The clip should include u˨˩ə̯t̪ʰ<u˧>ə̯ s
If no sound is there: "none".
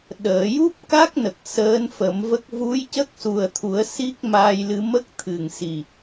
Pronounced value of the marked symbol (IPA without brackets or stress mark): u˨˩˦